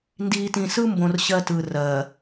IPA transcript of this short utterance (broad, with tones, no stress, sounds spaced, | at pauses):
n d iː˨ t ĩ˨ s ɯ˦ m b õ˨ r ɕ ɜ˦ t ɯ˨ r ɜ˨